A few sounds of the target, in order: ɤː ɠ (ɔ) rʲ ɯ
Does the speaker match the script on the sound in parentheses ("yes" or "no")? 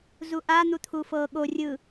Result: no